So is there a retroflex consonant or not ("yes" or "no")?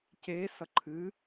no